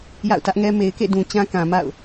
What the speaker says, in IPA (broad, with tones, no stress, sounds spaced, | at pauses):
j a̰˦˨ ʊ̯ t ä˦ ʔ ŋ ɛ˦ m e˨ ɪ̯ k ḛ˦˨ d ũ˨ t͡ɕ ã˦ k ã˨ m a̰˦˨ ʊ̯